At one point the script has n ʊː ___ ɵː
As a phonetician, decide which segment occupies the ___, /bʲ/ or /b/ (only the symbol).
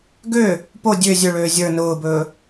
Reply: b